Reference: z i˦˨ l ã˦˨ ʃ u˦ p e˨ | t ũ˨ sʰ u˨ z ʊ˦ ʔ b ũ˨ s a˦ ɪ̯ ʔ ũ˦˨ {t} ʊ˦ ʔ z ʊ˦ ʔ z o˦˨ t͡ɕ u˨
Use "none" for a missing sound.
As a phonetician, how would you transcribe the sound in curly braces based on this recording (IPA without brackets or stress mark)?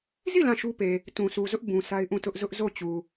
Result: t